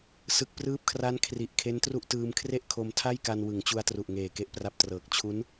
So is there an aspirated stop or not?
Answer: yes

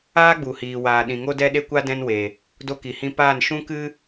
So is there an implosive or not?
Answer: yes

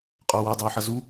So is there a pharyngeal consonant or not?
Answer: yes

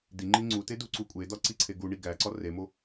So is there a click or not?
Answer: yes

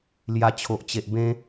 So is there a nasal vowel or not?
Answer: yes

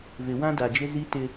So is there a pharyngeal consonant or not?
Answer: no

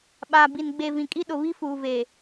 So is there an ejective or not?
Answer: yes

